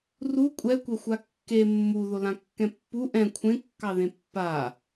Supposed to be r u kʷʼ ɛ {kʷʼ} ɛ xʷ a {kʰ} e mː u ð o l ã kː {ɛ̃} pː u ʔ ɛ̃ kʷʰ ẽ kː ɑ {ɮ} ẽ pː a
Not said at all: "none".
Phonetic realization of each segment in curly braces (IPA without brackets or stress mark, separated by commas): kʷ, kː, ɛ̃, ð